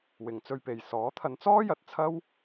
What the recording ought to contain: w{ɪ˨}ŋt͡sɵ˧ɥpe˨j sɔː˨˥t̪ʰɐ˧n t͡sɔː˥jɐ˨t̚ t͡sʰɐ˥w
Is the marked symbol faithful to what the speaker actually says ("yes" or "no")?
yes